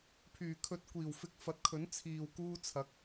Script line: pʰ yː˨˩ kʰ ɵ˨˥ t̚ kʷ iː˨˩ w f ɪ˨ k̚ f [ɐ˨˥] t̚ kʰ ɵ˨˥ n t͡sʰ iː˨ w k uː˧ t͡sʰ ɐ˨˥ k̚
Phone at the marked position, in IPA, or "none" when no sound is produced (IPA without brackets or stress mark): ɐ˨˥